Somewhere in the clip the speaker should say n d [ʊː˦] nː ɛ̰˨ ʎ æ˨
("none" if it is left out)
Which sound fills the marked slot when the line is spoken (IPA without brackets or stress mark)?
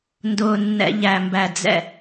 ʊː˨